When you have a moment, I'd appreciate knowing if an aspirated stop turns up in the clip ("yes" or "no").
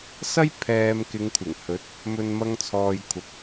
yes